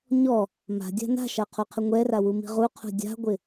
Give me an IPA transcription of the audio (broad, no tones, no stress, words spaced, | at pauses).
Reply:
ɲɔ | ma̤dʲa̤ na̤ʃaqʰoqʰɪ ŋʷɛrawumi̤ ʁuqʰṳ dʲa̤ɡʷɪ